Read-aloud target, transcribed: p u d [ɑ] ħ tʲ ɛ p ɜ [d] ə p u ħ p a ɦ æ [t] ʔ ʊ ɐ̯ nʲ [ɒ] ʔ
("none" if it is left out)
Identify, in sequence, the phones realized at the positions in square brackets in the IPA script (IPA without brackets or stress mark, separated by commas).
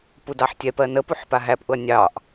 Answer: ɑ, n, p, ɑ